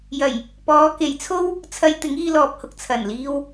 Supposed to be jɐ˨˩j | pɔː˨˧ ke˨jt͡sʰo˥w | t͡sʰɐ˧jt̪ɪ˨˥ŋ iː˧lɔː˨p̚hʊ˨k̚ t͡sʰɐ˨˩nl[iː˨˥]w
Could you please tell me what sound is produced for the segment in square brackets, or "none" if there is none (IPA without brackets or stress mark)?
iː˧